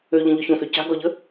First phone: ø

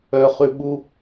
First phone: œ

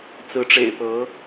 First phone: t͡s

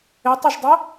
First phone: ɪ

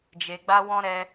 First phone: d͡ʒ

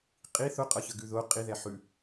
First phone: qʼ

